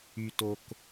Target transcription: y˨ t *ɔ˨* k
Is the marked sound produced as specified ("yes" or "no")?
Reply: no